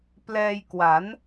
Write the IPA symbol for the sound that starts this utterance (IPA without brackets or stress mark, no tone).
p